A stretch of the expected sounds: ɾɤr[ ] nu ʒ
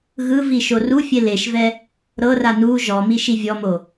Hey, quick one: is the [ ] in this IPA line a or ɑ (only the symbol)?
a